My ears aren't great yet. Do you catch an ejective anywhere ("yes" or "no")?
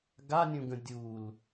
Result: no